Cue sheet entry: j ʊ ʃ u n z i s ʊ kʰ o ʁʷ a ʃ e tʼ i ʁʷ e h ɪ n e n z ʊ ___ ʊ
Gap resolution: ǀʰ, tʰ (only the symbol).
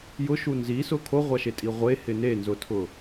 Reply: tʰ